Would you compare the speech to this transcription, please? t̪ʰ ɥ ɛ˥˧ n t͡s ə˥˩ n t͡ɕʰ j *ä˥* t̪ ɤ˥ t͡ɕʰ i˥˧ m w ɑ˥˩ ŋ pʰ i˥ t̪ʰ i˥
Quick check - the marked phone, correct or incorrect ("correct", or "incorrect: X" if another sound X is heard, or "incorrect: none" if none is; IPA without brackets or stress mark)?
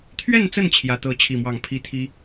correct